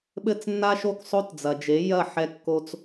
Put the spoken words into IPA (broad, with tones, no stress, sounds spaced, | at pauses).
ɓ ɘ˥˩ t͡s nː a˥ ʃ o˥˩ k sˤ o˥ t d͡z ɐ˩ d͡ʒ e˩˥ j ɐ˥˩ ħ ɛ˧ kː o˧ t͡s